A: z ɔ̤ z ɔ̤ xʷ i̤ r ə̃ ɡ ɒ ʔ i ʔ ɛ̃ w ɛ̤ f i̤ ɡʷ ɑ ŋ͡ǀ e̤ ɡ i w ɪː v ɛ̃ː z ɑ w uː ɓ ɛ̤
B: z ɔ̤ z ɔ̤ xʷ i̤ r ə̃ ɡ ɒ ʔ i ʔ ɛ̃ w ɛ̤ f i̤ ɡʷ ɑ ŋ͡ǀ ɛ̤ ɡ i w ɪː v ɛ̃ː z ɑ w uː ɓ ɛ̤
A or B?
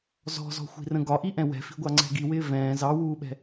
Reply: B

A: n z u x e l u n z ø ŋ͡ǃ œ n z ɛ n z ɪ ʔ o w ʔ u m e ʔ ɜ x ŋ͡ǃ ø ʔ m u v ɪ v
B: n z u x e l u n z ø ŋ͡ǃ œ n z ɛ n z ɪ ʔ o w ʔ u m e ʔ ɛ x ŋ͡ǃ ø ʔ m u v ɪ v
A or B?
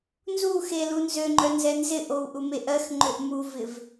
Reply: A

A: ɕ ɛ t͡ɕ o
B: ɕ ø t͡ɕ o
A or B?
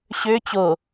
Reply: B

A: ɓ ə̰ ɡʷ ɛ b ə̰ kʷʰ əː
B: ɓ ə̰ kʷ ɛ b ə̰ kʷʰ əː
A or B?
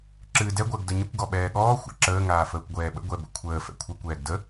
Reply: A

